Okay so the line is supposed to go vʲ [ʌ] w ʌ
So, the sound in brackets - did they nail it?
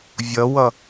yes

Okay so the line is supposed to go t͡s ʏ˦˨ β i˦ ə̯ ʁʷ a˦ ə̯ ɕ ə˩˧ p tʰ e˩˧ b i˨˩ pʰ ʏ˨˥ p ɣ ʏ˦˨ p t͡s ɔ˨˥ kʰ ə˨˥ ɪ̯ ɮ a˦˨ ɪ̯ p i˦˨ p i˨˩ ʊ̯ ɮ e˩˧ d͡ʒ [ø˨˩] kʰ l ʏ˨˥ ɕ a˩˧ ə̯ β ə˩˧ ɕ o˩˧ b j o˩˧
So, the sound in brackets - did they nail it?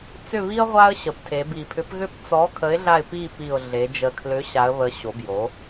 no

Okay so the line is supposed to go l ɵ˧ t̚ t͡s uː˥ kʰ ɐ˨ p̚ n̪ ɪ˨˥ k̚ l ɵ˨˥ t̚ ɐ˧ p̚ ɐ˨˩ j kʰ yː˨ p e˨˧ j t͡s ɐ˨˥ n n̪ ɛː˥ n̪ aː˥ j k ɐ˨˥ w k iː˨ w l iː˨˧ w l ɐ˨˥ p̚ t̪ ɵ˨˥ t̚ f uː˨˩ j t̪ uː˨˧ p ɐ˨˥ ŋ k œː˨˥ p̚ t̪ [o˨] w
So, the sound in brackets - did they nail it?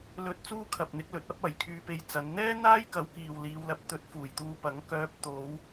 no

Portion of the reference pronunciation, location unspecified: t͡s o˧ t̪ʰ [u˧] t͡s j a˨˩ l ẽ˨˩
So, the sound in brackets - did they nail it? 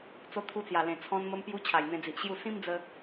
yes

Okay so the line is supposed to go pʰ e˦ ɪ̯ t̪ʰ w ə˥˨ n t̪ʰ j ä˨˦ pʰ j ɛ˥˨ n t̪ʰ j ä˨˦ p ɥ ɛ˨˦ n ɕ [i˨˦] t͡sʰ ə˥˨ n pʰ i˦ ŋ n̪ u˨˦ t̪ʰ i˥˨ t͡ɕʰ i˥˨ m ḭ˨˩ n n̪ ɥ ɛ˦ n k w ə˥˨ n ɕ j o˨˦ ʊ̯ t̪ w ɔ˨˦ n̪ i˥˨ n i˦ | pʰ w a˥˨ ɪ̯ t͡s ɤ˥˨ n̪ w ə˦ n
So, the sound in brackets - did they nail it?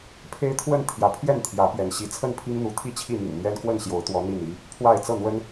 yes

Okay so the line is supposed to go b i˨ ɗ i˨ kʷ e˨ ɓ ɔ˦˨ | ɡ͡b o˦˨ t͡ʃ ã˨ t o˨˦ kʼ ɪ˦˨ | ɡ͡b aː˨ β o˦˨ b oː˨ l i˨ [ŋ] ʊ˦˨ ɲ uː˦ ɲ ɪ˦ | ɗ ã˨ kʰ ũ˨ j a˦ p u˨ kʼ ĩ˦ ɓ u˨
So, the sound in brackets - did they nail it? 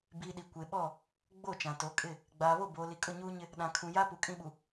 no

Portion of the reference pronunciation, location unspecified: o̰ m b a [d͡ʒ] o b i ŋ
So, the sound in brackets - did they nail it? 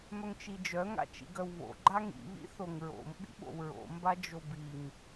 yes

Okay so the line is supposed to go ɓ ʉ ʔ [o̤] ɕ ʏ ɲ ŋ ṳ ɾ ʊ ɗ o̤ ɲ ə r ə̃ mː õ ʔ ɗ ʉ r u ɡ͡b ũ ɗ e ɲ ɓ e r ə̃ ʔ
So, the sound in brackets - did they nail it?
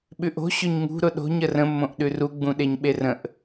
yes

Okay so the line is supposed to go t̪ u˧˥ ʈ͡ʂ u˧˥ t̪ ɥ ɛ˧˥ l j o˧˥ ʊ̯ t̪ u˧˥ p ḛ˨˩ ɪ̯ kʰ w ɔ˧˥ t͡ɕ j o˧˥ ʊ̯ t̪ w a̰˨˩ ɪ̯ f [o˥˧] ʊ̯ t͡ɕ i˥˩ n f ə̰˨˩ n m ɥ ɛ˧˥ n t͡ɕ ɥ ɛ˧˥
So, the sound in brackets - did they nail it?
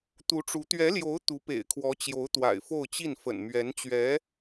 yes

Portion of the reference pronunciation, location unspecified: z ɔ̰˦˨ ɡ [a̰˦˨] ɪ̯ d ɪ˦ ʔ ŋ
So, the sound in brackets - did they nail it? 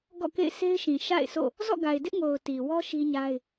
no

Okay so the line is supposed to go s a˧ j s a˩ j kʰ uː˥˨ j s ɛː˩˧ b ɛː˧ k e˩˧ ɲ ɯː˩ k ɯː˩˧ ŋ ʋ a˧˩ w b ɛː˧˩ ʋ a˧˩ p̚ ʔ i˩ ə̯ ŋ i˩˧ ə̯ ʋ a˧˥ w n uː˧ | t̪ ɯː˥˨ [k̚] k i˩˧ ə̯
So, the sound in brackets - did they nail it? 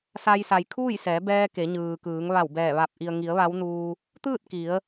no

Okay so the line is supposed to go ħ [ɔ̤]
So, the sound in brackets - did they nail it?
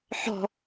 yes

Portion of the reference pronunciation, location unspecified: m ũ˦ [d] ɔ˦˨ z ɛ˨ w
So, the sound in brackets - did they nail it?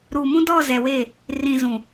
yes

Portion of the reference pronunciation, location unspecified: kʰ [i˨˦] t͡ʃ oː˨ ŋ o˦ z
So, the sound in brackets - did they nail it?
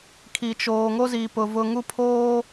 no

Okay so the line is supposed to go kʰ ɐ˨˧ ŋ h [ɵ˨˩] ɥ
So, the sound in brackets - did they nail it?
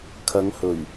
yes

